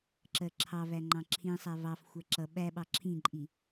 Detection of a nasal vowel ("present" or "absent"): present